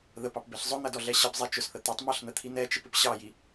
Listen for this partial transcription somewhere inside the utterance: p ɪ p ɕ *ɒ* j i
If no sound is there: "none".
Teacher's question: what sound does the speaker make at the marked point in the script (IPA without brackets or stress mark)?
ɑ